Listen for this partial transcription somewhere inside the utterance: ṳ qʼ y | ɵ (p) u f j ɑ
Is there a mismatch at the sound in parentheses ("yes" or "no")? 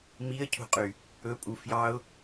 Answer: yes